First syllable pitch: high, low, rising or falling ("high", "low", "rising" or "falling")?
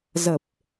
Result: low